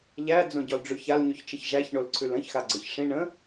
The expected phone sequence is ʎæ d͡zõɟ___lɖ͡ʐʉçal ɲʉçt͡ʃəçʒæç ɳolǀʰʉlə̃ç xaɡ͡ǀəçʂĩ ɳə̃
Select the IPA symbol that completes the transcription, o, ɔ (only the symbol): ɔ